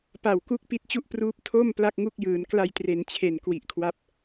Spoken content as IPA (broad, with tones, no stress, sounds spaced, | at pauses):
p a˨˩ w k u˦˥ k̚ p i˦˥ t̚ t͡ɕ u˥˩ ʔ p r uː˦˥ p̚ tʰ o˥˩ m p l a˥˩ k̚ ŋ u˥˩ k̚ j ɯː˩˦ n k l a˧ j t r e˩˦ n t͡ɕʰ e˨˩ n k w i˨˩ ʔ kʰ w a˦˥ p̚